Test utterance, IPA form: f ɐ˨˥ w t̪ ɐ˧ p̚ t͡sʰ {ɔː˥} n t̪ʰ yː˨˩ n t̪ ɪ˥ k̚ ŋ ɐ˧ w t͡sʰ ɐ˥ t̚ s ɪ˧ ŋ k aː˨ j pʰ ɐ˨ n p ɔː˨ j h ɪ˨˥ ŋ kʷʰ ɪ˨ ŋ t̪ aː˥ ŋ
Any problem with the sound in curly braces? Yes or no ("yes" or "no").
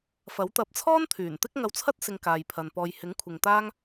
no